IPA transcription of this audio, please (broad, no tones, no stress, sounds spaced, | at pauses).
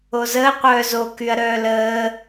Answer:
o z əː qʷ œː z o k y ɐ̯ ɾ œː l əː